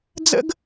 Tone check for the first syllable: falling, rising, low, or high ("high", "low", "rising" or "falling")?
high